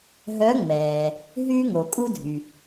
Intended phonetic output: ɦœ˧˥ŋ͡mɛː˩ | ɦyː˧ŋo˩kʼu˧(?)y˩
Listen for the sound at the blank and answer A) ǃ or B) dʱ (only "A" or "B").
B